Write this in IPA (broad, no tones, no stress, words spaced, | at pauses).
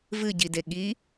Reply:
vɨɟide ɠi